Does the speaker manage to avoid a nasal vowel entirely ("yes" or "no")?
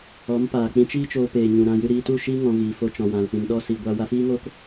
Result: no